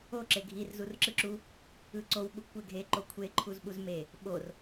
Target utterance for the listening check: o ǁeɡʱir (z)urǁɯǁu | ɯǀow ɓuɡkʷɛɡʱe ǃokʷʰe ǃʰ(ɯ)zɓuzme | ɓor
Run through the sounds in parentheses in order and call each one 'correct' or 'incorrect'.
correct, incorrect: u

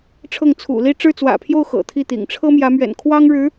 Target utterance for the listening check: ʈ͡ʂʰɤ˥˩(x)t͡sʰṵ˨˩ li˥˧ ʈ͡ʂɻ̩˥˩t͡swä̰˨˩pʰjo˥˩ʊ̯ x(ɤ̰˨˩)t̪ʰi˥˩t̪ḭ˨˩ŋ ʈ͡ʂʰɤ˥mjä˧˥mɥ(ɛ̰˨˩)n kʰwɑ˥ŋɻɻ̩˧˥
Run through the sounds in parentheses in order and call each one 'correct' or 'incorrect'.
incorrect: ŋ, correct, correct

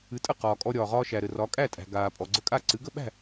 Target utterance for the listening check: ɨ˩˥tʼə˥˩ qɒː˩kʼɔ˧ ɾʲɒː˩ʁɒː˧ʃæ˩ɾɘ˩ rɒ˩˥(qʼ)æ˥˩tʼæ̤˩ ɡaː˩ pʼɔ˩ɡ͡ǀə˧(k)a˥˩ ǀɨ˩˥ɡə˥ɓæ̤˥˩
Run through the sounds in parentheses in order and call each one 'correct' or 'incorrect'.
incorrect: kʼ, incorrect: kʼ

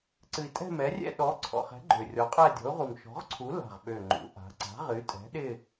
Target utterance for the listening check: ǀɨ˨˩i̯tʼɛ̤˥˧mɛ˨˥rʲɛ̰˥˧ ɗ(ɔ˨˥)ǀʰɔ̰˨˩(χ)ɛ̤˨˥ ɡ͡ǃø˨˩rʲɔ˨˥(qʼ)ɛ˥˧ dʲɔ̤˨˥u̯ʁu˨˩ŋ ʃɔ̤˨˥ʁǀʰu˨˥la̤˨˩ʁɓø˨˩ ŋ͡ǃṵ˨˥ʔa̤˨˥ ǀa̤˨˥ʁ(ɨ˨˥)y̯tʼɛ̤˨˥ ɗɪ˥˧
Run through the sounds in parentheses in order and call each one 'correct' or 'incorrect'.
correct, correct, correct, correct

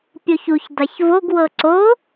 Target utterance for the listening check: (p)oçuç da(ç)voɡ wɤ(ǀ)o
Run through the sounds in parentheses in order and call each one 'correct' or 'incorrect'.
incorrect: pʲ, correct, correct

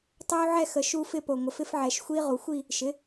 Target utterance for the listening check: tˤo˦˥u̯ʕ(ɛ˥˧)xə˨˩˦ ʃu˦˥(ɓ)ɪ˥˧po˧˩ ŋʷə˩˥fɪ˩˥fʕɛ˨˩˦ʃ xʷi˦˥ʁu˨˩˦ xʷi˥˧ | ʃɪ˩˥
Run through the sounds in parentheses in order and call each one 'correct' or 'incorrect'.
correct, incorrect: f

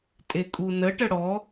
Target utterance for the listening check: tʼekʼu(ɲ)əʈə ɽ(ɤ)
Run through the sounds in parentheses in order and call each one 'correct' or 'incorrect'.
incorrect: n, incorrect: ɔ

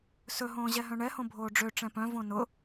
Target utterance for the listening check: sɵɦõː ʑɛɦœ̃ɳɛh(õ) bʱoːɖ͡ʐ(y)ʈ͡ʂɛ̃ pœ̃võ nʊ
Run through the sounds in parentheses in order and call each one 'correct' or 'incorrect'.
correct, incorrect: ø

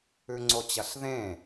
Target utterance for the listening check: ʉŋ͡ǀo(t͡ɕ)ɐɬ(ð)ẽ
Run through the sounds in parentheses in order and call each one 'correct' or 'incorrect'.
correct, correct

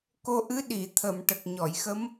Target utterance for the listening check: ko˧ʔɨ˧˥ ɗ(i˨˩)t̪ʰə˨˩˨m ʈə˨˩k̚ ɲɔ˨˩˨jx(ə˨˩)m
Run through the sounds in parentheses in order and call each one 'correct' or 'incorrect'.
incorrect: i˨˩˨, incorrect: ə˧˥

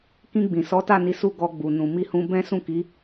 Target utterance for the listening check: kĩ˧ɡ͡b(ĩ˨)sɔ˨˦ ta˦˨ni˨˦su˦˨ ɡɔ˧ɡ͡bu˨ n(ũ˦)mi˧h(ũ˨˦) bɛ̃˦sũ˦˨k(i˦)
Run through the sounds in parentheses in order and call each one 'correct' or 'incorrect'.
correct, incorrect: ũ˨, incorrect: ũ˧, incorrect: i˨˦

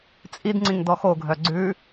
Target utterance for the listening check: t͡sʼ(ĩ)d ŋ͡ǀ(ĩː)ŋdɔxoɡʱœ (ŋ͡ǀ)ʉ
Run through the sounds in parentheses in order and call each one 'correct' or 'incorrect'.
incorrect: i, incorrect: ĩ, incorrect: ɡ͡ǀ

